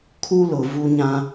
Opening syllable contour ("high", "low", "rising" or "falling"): high